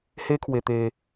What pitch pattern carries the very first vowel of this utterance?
high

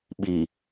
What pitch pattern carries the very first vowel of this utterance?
low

